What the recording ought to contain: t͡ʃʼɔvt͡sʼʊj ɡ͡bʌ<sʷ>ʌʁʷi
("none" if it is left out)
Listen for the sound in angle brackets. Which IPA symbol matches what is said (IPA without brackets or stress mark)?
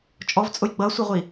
sʷ